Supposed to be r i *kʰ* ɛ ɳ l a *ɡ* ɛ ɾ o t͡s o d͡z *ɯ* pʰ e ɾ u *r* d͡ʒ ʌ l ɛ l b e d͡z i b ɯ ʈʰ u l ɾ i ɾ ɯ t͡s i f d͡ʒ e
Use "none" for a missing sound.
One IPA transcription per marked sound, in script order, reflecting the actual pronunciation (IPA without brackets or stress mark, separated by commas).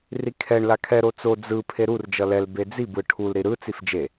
kʰ, kʰ, ɯ, r